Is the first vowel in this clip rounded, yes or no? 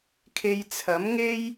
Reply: no